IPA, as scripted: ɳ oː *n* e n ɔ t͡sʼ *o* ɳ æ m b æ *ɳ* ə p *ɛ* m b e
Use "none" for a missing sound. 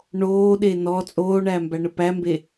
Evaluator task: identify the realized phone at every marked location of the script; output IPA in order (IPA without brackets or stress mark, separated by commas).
ɗ, oː, ɳ, æ